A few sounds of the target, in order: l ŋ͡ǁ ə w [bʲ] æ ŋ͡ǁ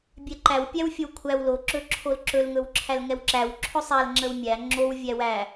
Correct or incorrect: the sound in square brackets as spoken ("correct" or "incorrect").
incorrect